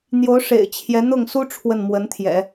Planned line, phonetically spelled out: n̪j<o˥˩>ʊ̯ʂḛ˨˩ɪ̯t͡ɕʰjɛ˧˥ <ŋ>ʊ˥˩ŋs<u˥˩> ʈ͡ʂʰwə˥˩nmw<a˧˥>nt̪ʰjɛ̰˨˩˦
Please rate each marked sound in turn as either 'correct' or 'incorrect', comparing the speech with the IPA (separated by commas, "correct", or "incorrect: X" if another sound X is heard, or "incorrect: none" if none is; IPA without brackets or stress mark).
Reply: incorrect: o˧˥, incorrect: n̪, incorrect: u˥, incorrect: ə˧˥